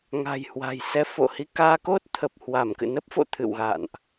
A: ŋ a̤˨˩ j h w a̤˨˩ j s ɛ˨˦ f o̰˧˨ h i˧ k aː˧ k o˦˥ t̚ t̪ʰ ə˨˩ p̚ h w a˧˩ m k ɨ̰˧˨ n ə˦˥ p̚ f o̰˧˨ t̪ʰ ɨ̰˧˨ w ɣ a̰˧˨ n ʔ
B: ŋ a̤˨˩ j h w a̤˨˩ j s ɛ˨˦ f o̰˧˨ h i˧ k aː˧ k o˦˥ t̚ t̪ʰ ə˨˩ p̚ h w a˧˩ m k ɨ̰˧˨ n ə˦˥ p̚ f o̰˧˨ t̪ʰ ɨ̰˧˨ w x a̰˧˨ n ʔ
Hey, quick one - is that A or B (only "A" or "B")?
A